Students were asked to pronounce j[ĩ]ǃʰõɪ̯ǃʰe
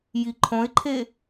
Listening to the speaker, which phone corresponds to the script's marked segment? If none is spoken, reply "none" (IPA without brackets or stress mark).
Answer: i